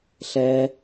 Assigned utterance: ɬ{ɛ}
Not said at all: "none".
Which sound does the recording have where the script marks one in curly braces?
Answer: ɛ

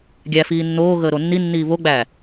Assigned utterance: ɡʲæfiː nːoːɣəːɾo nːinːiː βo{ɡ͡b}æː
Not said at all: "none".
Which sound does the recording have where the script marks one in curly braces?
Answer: ɡ͡b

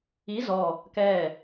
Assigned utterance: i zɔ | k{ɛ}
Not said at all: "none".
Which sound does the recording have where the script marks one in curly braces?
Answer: ɛː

